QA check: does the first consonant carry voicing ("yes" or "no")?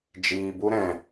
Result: yes